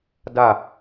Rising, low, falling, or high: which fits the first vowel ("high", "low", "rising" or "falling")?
falling